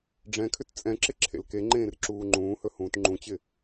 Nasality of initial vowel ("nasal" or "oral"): nasal